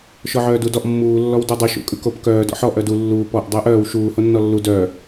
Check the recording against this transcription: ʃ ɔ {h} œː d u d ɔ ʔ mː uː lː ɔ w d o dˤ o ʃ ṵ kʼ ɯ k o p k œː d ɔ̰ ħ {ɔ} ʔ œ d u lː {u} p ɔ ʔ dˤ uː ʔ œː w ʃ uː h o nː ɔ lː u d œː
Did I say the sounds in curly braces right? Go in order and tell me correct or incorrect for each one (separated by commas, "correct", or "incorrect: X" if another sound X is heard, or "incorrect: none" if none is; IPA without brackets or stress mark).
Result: incorrect: ʕ, correct, incorrect: uː